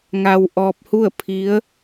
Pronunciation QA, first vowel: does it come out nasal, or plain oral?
oral